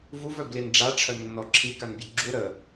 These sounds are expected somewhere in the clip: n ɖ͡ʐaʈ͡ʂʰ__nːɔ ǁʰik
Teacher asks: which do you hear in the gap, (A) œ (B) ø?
A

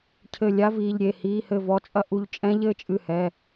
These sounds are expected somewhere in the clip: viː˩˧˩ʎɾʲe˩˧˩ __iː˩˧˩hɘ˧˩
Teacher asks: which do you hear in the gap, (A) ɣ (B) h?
B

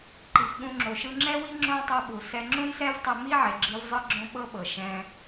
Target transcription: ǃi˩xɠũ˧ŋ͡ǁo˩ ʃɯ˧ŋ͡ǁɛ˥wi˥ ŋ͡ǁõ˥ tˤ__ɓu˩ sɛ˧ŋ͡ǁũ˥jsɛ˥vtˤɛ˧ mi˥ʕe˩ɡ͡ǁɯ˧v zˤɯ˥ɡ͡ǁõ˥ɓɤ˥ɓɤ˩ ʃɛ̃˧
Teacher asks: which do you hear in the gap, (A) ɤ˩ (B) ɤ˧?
B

